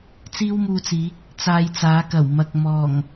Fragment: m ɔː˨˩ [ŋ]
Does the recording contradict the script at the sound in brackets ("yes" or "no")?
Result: no